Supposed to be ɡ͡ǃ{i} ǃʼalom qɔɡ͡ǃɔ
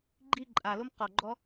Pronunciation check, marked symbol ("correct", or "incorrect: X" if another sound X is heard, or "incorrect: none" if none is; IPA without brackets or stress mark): correct